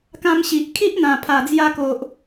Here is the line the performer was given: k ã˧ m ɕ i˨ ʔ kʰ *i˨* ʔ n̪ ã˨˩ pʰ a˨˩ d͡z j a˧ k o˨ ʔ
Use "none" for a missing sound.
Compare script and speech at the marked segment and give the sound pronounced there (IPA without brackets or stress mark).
i˦